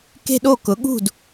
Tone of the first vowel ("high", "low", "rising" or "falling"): falling